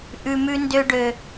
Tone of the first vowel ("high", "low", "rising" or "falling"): low